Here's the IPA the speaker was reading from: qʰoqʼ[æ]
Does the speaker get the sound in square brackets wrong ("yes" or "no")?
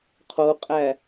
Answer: no